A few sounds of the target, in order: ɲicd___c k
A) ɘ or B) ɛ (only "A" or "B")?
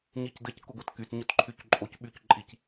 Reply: A